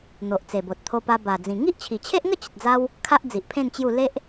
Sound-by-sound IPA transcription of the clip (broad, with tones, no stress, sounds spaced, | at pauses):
n̪ o˨ ʔ t͡s e˨˩ b o˨ t̚ t̪ʰ o˧ p a˧ b a˨˩ d͡z ĩ˨˩ ŋ i˦ ʔ t͡ɕʰ i˨˩ t͡ɕʰ e˦ ʔ ŋ ə˥˧ t͡ɕ ə˨ t̚ d͡z a˦ w | kʰ a˦ ʔ d͡z i˨ ʔ pʰ ẽ˥˧ n t͡ɕ j u˥˧ l e˦ ʔ